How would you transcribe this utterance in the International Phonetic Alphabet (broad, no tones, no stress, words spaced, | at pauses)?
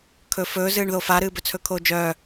kʰɵːfɵːzɨːɳ ðofaɾɨː bɵt͡sʰɵkʰoːd͡ʒœː